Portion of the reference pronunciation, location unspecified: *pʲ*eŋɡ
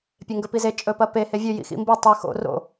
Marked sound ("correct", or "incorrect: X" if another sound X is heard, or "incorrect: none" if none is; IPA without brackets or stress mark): correct